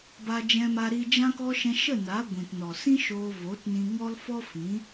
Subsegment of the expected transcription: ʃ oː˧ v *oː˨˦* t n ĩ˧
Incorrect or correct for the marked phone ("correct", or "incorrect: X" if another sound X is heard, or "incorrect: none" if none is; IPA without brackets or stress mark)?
correct